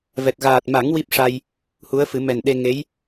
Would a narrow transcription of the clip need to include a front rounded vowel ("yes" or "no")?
no